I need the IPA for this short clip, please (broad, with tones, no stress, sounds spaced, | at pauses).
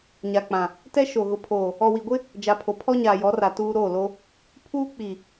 ɲ a˨ k͡p ã˨ | t ɛ˦ ʃ o˨ ɣ ʊ˨ pʰ oː˨ | ɔ˨ w i˨ ɡʷ ɪ˦ | d͡ʒ a˨ pʰ o˨ pʰ ɔ˦ ɲ aː˨ j ɔ˨˦ r a˨ t uː˦ ɾ oː˦˨ l o˦ | pʰ uː˦ k͡p i˨